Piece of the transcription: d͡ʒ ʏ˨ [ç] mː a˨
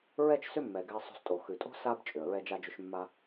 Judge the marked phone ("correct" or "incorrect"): incorrect